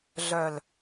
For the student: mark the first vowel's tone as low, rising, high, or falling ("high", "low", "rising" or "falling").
low